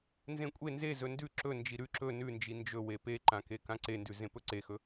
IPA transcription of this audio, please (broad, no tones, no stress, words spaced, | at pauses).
nzẽkʷʼe nze zɵndʉ ǁɵ nd͡ʒiɾʉ ǁɵ nʉnd͡ʒi nd͡ʒɵwe peǃãke kãǀendʉ zẽpɵǀexɵ